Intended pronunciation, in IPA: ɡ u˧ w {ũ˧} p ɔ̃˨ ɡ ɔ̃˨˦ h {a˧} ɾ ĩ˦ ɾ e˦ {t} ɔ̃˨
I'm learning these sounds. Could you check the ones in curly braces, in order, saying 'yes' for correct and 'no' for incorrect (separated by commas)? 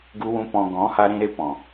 yes, yes, no